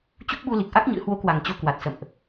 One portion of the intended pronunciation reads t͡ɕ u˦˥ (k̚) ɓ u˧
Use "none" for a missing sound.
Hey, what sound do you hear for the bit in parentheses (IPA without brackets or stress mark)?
k̚